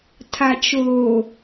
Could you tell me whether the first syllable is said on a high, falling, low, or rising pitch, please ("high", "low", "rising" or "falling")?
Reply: low